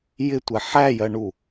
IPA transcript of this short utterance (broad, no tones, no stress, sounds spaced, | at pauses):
j ɪ tʷ ɛ ħ æ j ɜ ɳ u